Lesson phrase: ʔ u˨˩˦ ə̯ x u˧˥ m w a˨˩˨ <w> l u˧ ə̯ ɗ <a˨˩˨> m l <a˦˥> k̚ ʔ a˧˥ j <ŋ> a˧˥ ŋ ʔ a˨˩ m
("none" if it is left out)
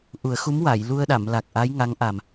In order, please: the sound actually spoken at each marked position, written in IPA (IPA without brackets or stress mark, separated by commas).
j, a˨˩˨, a˨˩, ŋ